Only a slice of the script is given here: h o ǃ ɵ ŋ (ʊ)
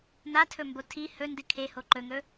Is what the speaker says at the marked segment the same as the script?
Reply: no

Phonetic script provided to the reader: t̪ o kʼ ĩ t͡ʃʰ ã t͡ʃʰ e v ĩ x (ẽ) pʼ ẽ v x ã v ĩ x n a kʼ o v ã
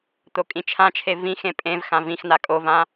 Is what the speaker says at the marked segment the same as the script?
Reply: yes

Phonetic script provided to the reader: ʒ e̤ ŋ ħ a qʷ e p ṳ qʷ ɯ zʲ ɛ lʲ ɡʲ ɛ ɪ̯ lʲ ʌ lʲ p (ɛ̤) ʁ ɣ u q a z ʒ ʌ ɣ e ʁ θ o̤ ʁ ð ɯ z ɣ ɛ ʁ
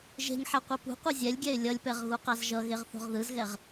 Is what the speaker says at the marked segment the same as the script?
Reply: no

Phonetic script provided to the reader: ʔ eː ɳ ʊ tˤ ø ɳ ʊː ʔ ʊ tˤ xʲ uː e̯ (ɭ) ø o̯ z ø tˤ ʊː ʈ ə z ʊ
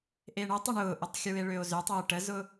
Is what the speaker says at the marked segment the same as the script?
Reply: yes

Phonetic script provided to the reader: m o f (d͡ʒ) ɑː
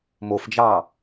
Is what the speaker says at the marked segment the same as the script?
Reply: yes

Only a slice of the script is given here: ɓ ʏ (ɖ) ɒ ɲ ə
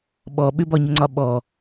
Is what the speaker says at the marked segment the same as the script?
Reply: no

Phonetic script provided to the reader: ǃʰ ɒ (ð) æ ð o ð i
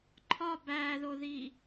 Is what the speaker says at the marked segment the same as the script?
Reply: no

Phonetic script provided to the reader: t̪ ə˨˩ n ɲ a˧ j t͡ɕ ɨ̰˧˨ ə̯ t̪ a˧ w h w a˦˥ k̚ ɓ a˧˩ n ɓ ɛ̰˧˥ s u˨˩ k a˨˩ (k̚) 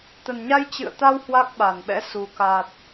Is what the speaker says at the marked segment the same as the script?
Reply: no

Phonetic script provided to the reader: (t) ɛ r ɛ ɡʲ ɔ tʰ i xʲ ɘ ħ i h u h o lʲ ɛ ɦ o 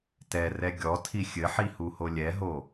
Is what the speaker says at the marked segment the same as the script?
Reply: yes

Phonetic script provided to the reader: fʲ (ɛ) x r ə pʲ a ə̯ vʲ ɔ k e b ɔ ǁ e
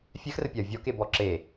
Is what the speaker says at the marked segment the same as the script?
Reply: yes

